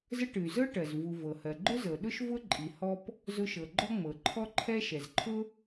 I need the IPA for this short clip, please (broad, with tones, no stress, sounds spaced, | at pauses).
z ə˥ ʈ ɨ˩ y̯ z ɤ˥ ʈ ɜ˩ z v u˩ v ɤ˩ h ɜ˩ ɡ͡ǃ ʊ˥ z ɤ˩ ɗ ʊ˥ ʃ v ʊ˥ ǃʼ i˩ h ɔ˥ p | z ʊ˥ ʃ ɤ˩ ɡ͡ǃ ɔ˥ ŋ͡m ɤ˩ ǃʰ ɔ˥ ǃʰ ɛ˥ ʃ ɛ˩ z ǃʰ ʊ˥